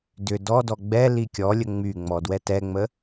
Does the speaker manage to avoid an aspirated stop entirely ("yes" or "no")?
yes